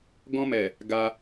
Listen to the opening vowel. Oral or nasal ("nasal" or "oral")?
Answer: nasal